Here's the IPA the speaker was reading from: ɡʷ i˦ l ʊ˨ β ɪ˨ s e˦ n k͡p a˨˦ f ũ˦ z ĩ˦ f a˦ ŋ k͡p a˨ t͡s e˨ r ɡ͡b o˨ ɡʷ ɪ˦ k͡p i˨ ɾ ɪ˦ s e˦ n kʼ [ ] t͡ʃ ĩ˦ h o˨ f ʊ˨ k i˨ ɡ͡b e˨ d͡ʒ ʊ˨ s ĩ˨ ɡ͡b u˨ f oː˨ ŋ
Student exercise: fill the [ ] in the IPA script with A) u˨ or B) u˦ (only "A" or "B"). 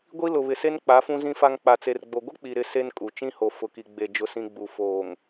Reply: A